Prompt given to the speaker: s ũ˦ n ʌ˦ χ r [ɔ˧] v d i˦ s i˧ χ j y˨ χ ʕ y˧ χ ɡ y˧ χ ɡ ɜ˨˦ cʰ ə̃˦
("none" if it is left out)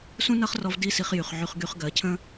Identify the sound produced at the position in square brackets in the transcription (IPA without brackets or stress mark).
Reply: ɔ˧